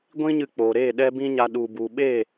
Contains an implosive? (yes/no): yes